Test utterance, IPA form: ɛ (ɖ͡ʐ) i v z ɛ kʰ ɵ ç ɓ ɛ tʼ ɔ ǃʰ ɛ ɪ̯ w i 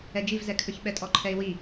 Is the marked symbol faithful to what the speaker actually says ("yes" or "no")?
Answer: no